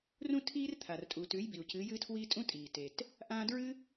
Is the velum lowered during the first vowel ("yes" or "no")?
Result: yes